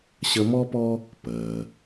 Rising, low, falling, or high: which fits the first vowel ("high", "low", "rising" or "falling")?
high